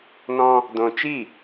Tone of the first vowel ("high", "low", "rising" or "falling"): high